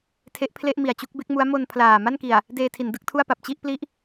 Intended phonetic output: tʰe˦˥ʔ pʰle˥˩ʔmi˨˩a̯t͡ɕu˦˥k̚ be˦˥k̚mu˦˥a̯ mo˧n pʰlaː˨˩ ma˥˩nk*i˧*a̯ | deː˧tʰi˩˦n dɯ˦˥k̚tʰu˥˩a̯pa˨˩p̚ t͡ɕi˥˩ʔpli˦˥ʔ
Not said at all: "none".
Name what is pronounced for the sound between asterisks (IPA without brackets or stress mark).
i˨˩